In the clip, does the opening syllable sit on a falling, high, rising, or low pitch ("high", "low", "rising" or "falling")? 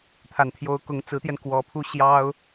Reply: low